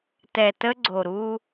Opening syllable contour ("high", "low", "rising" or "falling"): low